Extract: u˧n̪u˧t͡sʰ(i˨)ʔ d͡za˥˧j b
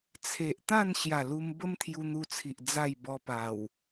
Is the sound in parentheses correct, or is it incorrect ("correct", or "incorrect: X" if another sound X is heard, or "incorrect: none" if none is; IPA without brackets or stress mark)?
correct